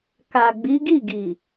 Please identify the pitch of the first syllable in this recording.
low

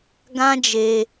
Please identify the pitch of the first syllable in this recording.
high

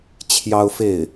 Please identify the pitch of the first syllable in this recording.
high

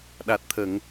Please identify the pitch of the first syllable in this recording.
low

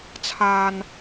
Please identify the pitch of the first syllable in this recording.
low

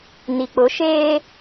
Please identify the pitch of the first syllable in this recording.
low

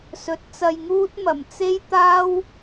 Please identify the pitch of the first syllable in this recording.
rising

